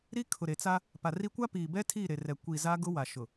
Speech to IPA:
ɾ i˦ kʰ ʊ˨ ɾ e˨ t͡s a˦ | p a˨ r i˦ kʷ a˦ p iː˨ b ɛ˦ tʰ i˦˨ ɾ e˨ r ɛ˨ kʷ i˨ z a˦ ɡ ʊ˦ w a˨ ʃ ʊ˨

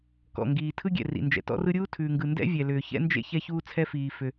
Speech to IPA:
k ɔ̰˩ ŋ ɡ iː˩ tʰ ɯ˥ ɡʲ ɛ̰˩ r ḭ˩ n d͡ʒ ɛ̰˩ t ɔ̰˥ r ɯ˥ ɾʲ uː˥ tʰ ʉː˩ ŋ ɡ ɯ˩ n d ɛ̰˥ vʲ ɛ˩ l ʏː˩ ç ɛ̰˥ n d͡ʒ ḛ˥ ç ɛ˥ ç uː˥ t͡sʰ ɛ˥ f iː˩ f ʏ˩

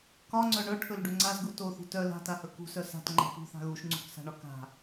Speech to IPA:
k ɒ ŋ͡ǀ œ ɳ œ ʈʰ ɵ l ɖ ɵ ŋ͡ǀ a z ɡ u t o θ ṳ t œ l a̤ t a h ɵ k ṳ s œ s a̤ t ŋ͡ǃ a̤ p ṳ θ a̤ ɣ u ʃ ŋ͡ǀ ṳ k s a̤ ɳ ɒ k a̤

